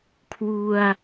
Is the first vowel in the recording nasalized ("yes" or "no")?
no